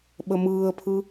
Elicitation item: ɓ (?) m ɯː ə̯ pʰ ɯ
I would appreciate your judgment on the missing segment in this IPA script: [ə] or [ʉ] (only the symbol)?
ə